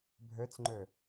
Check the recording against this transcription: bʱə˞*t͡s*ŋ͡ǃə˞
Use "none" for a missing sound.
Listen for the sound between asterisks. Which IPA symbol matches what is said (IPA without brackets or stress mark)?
t͡s